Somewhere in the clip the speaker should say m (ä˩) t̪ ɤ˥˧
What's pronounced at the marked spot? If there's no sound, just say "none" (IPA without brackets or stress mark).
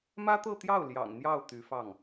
ä˥